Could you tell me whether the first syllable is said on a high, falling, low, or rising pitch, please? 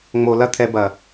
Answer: low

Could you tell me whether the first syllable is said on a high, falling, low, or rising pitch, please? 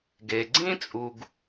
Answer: low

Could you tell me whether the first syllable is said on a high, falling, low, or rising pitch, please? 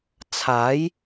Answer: rising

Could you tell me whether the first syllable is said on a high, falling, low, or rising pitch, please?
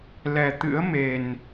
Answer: low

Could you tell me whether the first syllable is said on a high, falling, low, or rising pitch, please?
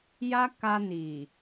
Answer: high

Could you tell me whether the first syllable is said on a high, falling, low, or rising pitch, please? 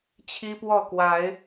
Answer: high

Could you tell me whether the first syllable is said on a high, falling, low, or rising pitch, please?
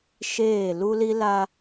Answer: falling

